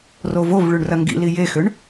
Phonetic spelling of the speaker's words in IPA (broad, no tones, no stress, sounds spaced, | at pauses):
r o v o v ɭ y ɳ r ɐ ŋ ɡ ḭ l i j e x ʏ ɳ